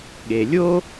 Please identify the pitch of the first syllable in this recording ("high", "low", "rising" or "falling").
low